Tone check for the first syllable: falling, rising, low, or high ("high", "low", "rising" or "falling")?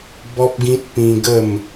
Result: high